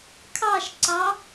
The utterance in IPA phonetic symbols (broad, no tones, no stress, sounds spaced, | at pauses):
kʰ ɑ ʃ ǀ ɑ